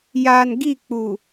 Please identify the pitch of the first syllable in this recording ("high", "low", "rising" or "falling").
low